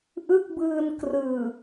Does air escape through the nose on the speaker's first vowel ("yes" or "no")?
no